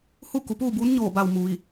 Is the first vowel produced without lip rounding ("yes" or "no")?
no